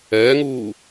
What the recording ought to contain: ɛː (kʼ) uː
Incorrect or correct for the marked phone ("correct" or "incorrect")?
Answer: incorrect